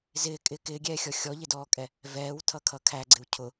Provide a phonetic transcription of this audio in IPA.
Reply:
zɪːkʼɪː kɪːɡʲɛːxʲɔ xʲɔʎɪdɔːkʼɛ | vɛːwtʰʌkʰʌ kʰæɡ͡ǀɪw cʰʊ

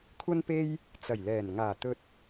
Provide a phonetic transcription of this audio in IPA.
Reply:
kʷʰɐ˥npe˥j | t͡sɐ˨˩jlɛː˨˩n ŋaː˨˩t̪ɵ˧t̚

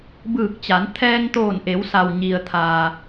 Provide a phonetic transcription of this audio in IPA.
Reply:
bɯː˧˩k̚t͡ɕa˩˧nt̪ʰɛː˧ŋ t̪oː˧˩nʔe˩˧wsa˩w ɲi˩ə̯t̪ʰa˩

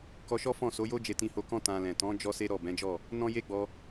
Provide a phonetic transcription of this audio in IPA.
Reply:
kɔ˧ʃɔ˦fɔ̃˦˨ so˨˦jo˦ d͡ʒe˧tĩ˧ho˧kɔ̃˦ tã˧lɛ̃˨ tɔ̃˨˦ d͡ʒɔ˦se˦ɾɔ˦˨ bɛ̃˨˦d͡ʒɔ˦˨ | nɔ̃˦je˦ɡ͡bɔ˧

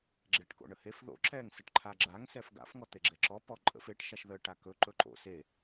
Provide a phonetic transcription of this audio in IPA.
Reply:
ɡ͡ǁeʈko̰ɳəhef ðo̰ǁɛŋ səʈǃʰaɡ͡ǁaŋ sɛfɡa̰f ŋɔt̪eɡ͡ǁɛǁɔ pɔǃʼə̰f eʈ ʃaʃðə ʈakɵ ǃɵǃo̰ se

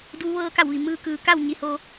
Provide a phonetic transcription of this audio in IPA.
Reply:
duː˧˥ʋɤː˧˥ka˧˩wʋi˩ mɯː˧kɯː˩˧ka˥˨w ɲi˩ho˩

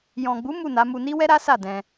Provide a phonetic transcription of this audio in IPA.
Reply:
jɔ̃˨ɡ͡bu˨˦ mu˦˨na˨˦mu˧ni˦ wɛ˦ɾa˦ sa˦˨dɛ̃˧

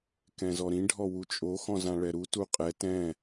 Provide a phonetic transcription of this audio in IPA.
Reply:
kɛ̃zɔɾĩ ɖʱɔwut͡ʃʼo xɔ̃zãɭɛɾu tuqʼɛ tɛ̃

